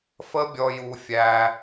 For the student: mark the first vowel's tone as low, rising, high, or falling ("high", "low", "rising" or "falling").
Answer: high